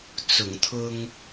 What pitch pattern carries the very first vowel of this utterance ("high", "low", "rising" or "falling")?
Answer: low